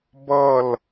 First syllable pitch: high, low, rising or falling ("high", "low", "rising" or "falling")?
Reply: falling